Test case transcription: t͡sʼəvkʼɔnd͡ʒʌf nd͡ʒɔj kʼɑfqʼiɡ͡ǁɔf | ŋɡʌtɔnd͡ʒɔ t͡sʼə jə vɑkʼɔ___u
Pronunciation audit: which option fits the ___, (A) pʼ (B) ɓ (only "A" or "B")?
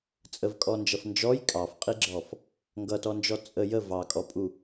A